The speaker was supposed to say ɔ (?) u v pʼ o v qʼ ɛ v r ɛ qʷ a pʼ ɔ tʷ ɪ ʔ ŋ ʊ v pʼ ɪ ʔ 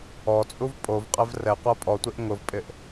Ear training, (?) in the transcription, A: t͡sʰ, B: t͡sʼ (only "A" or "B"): B